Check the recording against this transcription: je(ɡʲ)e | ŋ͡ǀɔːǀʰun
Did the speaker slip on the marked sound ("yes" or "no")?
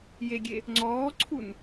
no